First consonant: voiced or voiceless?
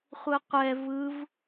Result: voiceless